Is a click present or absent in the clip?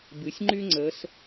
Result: present